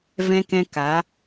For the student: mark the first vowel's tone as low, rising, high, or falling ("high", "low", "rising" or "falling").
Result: high